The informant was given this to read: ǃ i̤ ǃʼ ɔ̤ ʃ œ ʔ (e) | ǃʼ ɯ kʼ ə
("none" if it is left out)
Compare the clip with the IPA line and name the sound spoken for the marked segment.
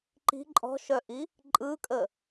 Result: i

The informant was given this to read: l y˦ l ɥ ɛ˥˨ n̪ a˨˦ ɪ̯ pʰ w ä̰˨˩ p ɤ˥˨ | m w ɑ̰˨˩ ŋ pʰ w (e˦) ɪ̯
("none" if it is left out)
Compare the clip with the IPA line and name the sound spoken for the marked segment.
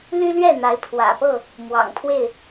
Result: e˥˨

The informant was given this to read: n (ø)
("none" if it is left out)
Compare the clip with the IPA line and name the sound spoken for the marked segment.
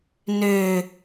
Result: ø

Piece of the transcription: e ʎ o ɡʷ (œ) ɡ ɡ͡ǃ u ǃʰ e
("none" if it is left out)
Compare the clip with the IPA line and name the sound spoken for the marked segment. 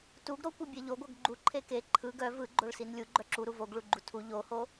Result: œ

